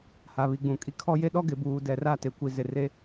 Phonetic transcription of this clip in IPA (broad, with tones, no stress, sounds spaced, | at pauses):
h a˨ β i˨ ɡ͡b ũ˨ kʼ i˦ kʰ ɔ˦ j e˦ ɗ ɔ˦ ɡ ɪ˨ b uː˨ d ɛ˨ r a˦˨ t e˨ kʷ i˨ z ɪ˨ r e˦